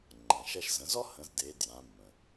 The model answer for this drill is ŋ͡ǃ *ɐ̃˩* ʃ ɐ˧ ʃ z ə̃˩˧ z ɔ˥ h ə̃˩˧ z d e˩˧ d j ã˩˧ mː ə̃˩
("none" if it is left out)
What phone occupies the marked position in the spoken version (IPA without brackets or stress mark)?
ɐ̃˩